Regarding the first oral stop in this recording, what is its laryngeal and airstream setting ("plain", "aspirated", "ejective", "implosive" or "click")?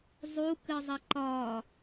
plain